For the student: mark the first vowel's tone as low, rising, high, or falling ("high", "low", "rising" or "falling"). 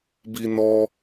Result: high